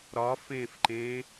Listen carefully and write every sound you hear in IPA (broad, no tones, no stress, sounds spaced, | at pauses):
ɾ ɒ f ẽ f ǃ ẽ